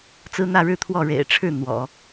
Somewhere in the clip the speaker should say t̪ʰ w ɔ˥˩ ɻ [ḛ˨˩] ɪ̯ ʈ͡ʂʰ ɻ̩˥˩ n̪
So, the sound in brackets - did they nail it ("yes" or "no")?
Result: yes